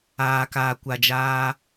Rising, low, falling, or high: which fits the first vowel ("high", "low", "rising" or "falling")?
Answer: low